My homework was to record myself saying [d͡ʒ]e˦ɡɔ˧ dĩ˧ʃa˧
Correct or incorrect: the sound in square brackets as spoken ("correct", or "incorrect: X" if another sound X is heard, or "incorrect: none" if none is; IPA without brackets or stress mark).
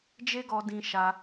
correct